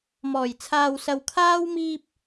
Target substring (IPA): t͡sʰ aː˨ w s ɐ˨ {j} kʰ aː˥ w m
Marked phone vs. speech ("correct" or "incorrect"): incorrect